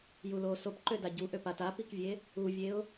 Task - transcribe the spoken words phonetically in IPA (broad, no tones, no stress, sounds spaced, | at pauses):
j u l o s o p ǃ ø d a ɟ u ʔ ø p a t a p i k vʲ e | u vʲ e ʊ̯